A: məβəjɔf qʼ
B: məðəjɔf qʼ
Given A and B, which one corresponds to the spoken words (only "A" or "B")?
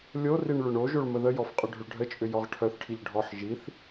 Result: B